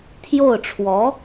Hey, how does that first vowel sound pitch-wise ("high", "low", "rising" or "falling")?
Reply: falling